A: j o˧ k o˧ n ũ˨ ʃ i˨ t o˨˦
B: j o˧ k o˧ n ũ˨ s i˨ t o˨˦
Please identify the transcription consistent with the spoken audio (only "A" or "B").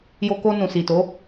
B